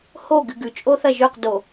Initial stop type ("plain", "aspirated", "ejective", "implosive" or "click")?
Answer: plain